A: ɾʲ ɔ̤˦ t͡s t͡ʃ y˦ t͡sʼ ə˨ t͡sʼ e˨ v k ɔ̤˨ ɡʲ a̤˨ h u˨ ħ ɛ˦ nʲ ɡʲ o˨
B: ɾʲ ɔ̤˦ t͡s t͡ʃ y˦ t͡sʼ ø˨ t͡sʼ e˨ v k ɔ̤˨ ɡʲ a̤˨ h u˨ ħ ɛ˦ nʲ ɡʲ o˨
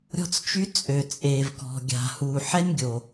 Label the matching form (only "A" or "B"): B